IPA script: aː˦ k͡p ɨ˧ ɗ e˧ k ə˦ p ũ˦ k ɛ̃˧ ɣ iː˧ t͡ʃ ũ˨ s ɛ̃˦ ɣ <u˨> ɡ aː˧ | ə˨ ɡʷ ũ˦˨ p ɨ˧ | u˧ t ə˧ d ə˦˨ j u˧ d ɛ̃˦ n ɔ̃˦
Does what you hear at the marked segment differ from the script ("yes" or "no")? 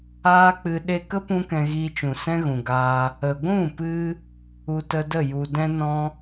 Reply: yes